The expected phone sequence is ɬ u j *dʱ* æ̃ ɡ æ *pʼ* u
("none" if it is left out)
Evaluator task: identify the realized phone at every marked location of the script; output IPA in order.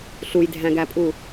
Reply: dʱ, pʼ

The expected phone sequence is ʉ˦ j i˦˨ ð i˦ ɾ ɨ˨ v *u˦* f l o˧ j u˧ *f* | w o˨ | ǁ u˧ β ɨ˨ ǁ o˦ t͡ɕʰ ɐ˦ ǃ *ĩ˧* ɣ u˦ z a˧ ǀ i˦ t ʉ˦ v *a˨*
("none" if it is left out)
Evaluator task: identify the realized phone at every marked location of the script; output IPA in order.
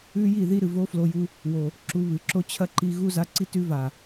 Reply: o˦, none, i˧, a˨

